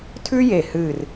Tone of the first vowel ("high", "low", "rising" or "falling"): high